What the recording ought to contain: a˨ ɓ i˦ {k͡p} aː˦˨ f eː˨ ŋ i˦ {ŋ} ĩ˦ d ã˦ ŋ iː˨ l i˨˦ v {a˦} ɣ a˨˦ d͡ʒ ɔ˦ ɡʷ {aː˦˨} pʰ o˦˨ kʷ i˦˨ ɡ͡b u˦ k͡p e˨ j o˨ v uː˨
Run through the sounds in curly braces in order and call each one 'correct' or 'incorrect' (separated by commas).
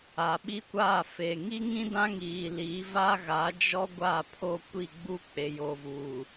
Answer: incorrect, correct, correct, correct